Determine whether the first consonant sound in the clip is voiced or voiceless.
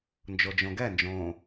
voiced